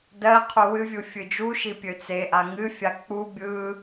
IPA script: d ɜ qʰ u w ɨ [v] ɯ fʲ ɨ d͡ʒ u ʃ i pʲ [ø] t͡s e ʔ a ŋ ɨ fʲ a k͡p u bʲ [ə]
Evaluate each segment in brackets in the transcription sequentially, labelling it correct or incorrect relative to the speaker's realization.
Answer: incorrect, correct, incorrect

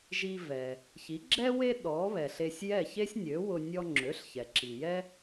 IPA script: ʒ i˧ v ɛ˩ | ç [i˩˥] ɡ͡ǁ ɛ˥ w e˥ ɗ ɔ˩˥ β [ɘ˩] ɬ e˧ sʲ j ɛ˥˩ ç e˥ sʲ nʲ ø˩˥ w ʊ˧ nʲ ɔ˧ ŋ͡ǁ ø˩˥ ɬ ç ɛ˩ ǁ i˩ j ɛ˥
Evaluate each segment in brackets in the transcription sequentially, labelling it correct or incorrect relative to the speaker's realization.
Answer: correct, incorrect

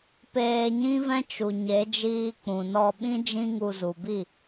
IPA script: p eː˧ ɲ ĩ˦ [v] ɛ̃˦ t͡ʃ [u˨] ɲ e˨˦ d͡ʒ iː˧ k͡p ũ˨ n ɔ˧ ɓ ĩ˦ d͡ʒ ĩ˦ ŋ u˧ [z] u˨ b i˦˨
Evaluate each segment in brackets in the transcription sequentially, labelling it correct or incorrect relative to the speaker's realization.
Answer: correct, correct, correct

